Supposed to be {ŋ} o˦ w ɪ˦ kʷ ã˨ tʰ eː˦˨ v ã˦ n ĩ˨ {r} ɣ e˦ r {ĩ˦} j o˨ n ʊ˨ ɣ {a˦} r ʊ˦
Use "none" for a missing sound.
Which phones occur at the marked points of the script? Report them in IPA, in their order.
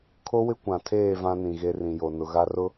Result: kʰ, none, ĩ˨, a˦

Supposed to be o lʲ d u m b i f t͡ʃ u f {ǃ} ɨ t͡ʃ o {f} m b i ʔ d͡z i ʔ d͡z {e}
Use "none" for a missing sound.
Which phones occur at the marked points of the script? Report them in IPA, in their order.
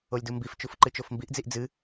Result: ǃ, f, ɨ

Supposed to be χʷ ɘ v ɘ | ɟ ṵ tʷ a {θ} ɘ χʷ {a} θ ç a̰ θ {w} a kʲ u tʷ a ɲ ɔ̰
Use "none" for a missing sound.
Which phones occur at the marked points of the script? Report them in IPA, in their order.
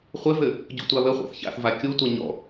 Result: β, a̰, v

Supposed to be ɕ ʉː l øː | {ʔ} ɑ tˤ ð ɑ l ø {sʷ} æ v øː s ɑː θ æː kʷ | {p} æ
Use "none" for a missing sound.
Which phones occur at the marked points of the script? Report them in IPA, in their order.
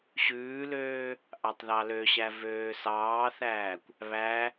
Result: ʔ, ɕ, β

